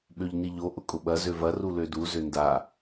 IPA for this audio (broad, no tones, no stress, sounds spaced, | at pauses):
ɓ ø ʎ n i ʎ o ʔ ʊ kʼ ʊ ɓ ɐ z ø v ɐ r u l ø d u z ø n d a